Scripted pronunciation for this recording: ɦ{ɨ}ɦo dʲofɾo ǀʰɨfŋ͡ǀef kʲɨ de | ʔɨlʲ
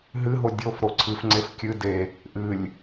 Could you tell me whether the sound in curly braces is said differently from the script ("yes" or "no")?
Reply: no